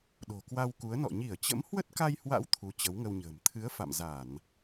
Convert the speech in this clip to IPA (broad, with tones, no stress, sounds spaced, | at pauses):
ɗ o̤˨˩ k w a˧ w k u˨˦ ə̯ n ɔ̰˧˨ ɲ i˧˩ ə̯ t͡ɕ ə̰˧˥ m h w ə˦˥ t̚ k a˧ j h w a̰˧˥ w t̪ʰ u˨˦ t͡ɕ ə˨˦ w ŋ ə˧ w ɲ ə̤ː˨˩ m t̪ʰ ɨ˨˦ ə̯ f a̰˧˨ m z a˧˩˨ n